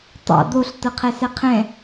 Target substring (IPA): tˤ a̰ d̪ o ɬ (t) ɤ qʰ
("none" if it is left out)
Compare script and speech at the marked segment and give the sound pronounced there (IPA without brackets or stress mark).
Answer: t